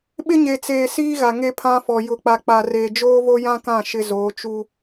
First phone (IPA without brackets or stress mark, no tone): ɓ